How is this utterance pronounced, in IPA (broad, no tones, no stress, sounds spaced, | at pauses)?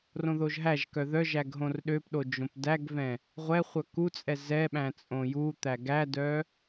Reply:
r õ ð o ʒ ɦ æ ʒ k œ ð œ ʒ æ ɡ ɦ õ r ɗ ø p ɗ o d͡ʒ õ p d æ ɡ v ɛ̃ | ʁʷ ɛ χʷ œ k u t͡sʼ ɛ z ɛ ɓ æ̃ t͡sʼ õ j u t̪ æ ɡ æ d œ